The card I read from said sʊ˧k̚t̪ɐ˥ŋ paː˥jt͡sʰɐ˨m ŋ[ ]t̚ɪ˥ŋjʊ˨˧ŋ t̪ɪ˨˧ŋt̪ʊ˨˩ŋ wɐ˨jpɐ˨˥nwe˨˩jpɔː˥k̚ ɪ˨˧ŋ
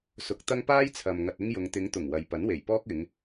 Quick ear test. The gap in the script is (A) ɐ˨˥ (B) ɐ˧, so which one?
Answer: B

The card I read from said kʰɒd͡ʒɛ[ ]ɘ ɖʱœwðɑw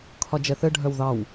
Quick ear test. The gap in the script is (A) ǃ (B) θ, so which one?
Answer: B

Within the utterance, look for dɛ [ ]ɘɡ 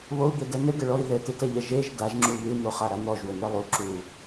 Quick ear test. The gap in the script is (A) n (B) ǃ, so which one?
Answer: A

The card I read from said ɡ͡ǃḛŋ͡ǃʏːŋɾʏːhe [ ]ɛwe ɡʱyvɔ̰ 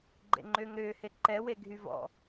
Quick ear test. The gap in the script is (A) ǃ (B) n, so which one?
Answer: A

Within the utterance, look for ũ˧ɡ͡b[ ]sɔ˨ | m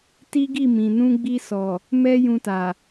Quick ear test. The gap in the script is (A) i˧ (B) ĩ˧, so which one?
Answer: A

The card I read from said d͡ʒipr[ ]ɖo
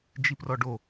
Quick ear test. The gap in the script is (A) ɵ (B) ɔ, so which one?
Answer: B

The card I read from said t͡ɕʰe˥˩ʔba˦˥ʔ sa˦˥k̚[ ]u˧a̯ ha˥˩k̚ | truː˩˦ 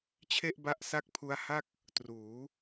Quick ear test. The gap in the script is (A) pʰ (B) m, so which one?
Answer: A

